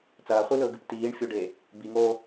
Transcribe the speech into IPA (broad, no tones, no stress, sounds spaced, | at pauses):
t͡s ɐː χʷ i l ɵː ɡ ɨ p t iː ɳ fʲ o ɖ eː | b i ŋ oː